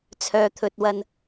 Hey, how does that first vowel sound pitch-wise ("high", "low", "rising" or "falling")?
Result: low